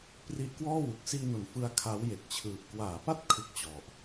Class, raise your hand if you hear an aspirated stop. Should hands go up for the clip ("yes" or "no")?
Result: yes